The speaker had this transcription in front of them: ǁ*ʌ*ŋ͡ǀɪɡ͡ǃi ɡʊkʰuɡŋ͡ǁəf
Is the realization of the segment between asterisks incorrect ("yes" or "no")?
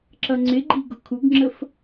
no